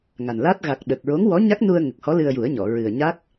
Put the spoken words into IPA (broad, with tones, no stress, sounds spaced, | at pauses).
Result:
ŋ a˨˩ n l a˦˥ t̚ ɣ a˨˩ k̚ ɗ ə˨˩ k̚ ɹ o˧˥ ŋ w ɔ˧˥ ɲ a˦˥ k̚ n u˧ ə̯ ŋ ə˨˩ k̚ h ɔ˧˥ l ɨ˧ ə̯ j u˨˩˦ ə̯ ɲ ɔ˨˩˨ ɹ ɨ˨˩ ə̯ ɲ a˦˥ k̚